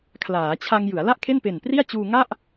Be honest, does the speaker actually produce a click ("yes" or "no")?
no